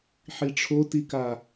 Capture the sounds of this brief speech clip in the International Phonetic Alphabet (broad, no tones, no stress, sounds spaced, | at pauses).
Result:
ħ i ʈ͡ʂʰ o t i k a